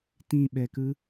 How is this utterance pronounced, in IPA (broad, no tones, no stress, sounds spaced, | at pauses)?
t ĩ ɓ ɛ k ɯ